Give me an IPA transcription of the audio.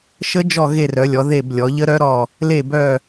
ʃ ə˦˥ d͡ʒ ɔ˦˨ ɣ e˦˨ r œ˩˧ lʲ ɔ˩˧ ð e˦˨ b lʲ ɔ˩˧ ʎ ə˦˥ ɾ œ˦˥ ɾ ɔ˦˨ | l e˦˨ b œ˦˨

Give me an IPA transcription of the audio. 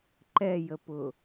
ǃ ɛ j ə p ʊ

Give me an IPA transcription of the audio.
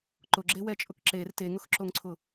ǃ ʊ ɡ͡ǁ e w ɛ t͡ʃʼ ʊ k ǁ e r t e ŋ ʊ x ǁ o ŋ ǀʰ ʊ

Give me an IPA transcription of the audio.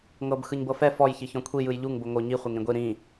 ŋ ɤ b x ɯ ɲ b ɤ f ɛ f ɔ j ç i ç ɔ̃ kʷʰ i j ɯ j ʎ u ŋ b o ŋ o ɲ i χʷ e ŋ ɾ ĩ ɡʷ i ɾ ĩ

